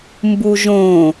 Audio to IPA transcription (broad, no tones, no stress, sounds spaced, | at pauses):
m b u ʒ õ